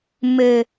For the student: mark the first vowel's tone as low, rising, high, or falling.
low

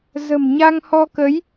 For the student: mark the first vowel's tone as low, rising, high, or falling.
low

